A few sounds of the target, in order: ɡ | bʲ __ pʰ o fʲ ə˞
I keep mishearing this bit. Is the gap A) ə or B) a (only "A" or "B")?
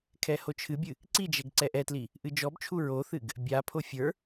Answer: B